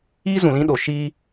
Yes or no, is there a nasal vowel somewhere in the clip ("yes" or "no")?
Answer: yes